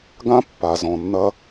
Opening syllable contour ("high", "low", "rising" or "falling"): high